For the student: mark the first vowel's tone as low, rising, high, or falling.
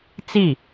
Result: falling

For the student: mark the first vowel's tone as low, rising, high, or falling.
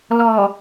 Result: low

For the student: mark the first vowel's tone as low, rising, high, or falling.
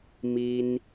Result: high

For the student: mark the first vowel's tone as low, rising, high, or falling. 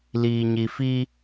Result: low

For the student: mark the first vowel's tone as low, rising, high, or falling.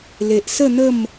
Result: low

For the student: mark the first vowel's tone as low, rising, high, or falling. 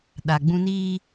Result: low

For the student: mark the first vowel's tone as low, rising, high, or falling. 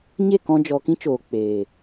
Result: falling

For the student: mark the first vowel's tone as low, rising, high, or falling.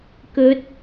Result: rising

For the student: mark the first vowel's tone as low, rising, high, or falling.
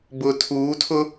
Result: low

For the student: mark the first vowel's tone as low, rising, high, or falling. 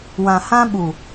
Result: low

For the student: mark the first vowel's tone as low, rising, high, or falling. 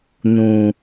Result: low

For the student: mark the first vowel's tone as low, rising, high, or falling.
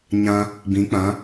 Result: high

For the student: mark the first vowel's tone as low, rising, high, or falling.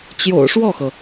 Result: low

